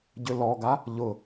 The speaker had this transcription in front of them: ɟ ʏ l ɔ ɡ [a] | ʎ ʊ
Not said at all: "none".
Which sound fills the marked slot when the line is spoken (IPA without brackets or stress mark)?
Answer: a